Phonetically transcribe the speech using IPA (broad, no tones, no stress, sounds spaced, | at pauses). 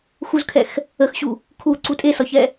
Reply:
x u z kʰ ɛ x | ə x ɕ u | kʰ u ǀ u tʼ e s ɒ ç ɛ